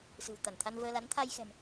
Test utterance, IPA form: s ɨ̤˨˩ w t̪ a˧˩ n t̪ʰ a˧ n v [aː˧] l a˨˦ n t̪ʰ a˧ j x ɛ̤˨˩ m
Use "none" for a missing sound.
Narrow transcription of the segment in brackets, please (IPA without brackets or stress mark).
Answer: əː˧